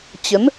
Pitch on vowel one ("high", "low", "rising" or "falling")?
rising